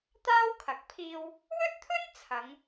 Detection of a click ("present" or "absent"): absent